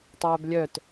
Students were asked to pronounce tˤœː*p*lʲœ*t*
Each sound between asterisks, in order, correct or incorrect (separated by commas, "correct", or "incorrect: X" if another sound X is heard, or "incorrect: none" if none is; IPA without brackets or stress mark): incorrect: b, correct